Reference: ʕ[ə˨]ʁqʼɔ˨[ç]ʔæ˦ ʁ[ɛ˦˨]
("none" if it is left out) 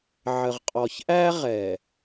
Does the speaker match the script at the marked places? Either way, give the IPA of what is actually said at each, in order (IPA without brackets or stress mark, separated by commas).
ə˨, ç, ɛ˨